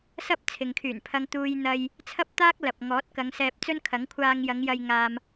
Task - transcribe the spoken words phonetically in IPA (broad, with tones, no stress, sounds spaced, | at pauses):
s ɐ˥ p̚ t͡sʰ ɪ˨ ŋ kʰ yː˨˩ n pʰ ɐ˧ ŋ t̪ uː˧ j n̪ ɐ˧ j | t͡sʰ ɐ˥ p̚ t̪ aː˥ k̚ l ɐ˨ p̚ ŋ ɔː˨˥ t̚ k ɐ˨˧ ŋ s ɛː˧ p̚ t͡s ɵ˥ n kʰ ɐ˨˥ ŋ kʷʰ aː˧ ŋ j ɐ˨˧ ŋ j ɐ˧ j ŋ aː˨ m